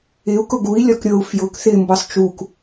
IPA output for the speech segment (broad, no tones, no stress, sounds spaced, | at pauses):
ɪ u̯ k ʊ ɡ u i̯ lʲ ɒ k ɾʲ ɤ u̯ f j ʊ k θ ɪ m b ɤ sˤ t͡ʃ u k